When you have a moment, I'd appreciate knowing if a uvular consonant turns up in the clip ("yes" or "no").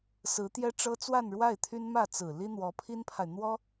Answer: no